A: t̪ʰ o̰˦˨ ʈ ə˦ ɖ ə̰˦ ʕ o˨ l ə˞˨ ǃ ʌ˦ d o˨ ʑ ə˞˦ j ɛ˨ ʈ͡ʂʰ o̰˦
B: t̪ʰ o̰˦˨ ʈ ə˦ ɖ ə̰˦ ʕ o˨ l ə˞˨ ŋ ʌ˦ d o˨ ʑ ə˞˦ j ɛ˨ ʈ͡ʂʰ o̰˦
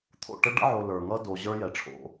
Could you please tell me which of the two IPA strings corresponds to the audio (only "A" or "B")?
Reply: B